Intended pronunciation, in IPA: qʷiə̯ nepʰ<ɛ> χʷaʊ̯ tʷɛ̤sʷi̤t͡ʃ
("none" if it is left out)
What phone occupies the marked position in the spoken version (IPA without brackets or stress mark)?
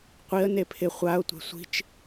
ɪ